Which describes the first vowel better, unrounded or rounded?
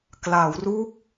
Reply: unrounded